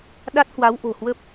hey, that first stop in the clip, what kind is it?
implosive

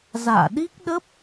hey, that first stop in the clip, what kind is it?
implosive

